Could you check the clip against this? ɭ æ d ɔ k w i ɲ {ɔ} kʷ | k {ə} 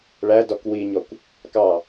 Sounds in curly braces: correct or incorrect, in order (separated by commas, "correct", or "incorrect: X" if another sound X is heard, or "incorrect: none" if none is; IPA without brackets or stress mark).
correct, incorrect: ɑ